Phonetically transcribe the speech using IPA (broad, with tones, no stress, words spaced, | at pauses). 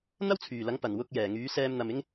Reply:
n̪ɐ˥wt͡sʰyː˨˩lɐ˨˥ŋ pɐ˨˩n wʊ˧k̚jɛː˨˩ ŋyː˨˥sɛː˧mn̪ɐ˨mɪ˥ŋ